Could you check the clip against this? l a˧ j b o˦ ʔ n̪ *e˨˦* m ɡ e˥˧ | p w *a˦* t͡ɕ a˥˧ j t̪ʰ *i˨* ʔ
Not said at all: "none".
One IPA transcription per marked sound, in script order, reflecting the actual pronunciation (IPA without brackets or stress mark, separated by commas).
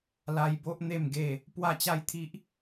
e˥˧, a˥˧, i˦